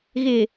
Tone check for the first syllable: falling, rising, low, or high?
low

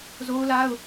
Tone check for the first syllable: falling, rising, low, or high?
high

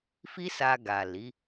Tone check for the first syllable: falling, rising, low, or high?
high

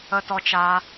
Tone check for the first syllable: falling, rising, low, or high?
high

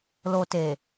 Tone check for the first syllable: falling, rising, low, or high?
low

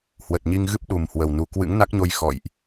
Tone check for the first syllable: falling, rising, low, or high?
low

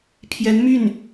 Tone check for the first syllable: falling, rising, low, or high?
rising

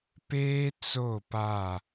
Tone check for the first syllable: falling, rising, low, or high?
high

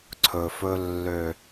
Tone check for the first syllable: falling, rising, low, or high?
low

